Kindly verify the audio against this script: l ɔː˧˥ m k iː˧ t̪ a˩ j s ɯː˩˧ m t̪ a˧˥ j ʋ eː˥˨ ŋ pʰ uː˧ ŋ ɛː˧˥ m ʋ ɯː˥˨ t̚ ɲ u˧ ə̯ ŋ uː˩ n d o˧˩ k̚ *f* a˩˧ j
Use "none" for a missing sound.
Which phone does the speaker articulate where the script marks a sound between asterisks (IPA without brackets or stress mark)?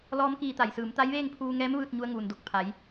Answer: pʰ